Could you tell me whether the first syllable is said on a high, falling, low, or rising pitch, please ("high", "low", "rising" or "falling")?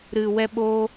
low